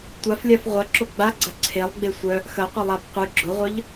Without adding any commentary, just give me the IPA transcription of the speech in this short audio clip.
tʷ a f lʲ a f ʁʷ ɐ ǁ o ɡ͡b a ɡ͡ǀ ɐ ǀʰ e lˠ ɡ͡b e sʷ œ | x ɐ qʷ ɐ lˠ a b qʷ ɨ ɡ͡ǁ ʊ ʁʷ œ ʎ

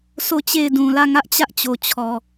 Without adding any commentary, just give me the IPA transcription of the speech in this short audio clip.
sʰ o˦˨ t͡ɕ e˦˨ ɪ̯ d ũ˨ l ä˦˨ ŋ ä˦ ʔ t͡ɕ ä˦ ʔ t͡ɕ o˨ t͡ɕʰ ɔ˨

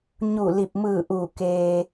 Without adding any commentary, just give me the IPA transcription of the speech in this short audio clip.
ɲ u˧˩ l i˧˩ p̚ m ɯː˧˩ ʔ uː˧˩ k eː˧

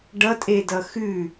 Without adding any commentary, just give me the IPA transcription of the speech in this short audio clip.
ɖ ʌ tʼ e d ʌ x ʉ

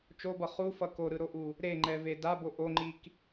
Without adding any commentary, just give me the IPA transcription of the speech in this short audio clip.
t͡ʃ o b ʌ χ u f ʌ k o ɾ ɯ ɾ o ʔ u | ɾ e ŋ͡ǃ ɛ v e d a b o ʔ o ŋ͡ǃ i k

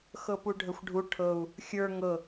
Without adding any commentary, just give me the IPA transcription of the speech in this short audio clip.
x ɤ p u ɖʱ ə xʷ ɖʱ u ʈʰ ɤ u̯ | xʲ ə˞ ŋ ɤ

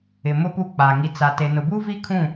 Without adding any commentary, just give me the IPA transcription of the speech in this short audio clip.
ɪ˨ m ʊ˦ p u˦˨ k͡p a˨ ŋ i˨ t͡s a˨ t e˨ n ʊ˨ b uː˦ v i˦ kʰ ũ˦˨

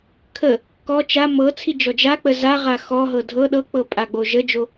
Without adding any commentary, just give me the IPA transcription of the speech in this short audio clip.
kʰ ə | k ɔ t͡ʃ a m ɤ t͡sʰ i d͡ʒ ɔ d͡ʒ a k͡p ə z a ʁ a x ɔ ɦ ɤ dʱ ɤ ɗ ɤ k͡p ɤ pʼ a ɡ͡b o ʒ ə d͡ʒ o

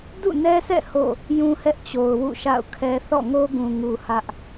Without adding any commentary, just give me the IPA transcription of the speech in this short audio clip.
d ṵ˦˨ n ɛ˦ s ɛ̰˦˨ h o̰˦˨ | j ũ˦ h ɛ˦ ʔ t͡ɕ o˨ ʊ̯ w ṵ˦˨ ʃ a̰˦˨ ʊ̯ kʰ ɛ˦ θ ɔ̰˦˨ ŋ o˦ ɡ ũ˨ ŋ u˨ h ä˦ ʔ

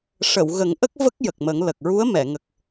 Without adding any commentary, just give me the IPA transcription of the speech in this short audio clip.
ʂ ə˨˩˨ w ɣ ə˨˩˦ ŋ ʔ ə˦˥ k̚ v ə˦˥ k̚ j ə˨˩ k̚ m ə˨˩˦ ŋ l ə˨˩ k̚ ɹ u˧˥ ə̯ m ɛ˨˩˨ ŋ ə˨˩ k̚

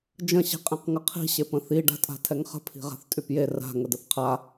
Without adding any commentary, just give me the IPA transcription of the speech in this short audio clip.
d͡ʒ ə̃ ɕ i̤ qʼ ẽ q ŋ ə qʰ i̤ ɕ e p ə̃ θ i ɖ a̤ tʼ a̤ tʰ ɛ ŋ χ ə̤ pʰ i̤ ʁ a̤ θ tʼ y p j e r a̤ ŋ ə d ə θ qʰ a

